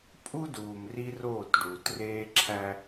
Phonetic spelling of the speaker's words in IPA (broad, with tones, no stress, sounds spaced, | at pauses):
pʼ u˦ d uː˨ m r i˦ r oː˦˨ t ɖ uː˨ t r eː˦ ǁʰ æ˦